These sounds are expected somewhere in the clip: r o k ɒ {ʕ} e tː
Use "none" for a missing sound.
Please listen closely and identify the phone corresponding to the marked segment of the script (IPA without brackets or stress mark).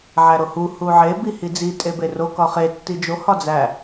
χ